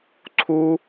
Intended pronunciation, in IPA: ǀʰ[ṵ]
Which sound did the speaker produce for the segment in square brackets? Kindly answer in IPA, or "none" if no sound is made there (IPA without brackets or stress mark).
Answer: u